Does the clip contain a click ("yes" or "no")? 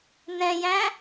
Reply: no